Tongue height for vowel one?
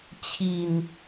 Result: high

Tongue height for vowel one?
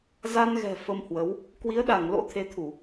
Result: low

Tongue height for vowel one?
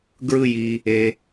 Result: high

